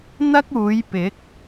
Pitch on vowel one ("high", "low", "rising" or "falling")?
high